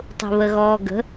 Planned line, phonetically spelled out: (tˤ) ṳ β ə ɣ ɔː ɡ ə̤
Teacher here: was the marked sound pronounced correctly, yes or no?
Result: yes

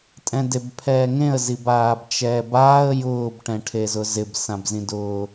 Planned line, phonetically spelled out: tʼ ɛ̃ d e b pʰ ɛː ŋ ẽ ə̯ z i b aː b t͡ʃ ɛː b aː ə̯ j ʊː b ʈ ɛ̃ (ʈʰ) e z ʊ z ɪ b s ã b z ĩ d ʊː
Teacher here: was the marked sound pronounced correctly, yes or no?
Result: yes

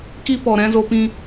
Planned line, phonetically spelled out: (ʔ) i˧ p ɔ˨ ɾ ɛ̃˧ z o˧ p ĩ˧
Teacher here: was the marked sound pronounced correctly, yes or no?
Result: no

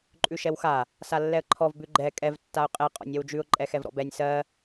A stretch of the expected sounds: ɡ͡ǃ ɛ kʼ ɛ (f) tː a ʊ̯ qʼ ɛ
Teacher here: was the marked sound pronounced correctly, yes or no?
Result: no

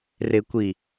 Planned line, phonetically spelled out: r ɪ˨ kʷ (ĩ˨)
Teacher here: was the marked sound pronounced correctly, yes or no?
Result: no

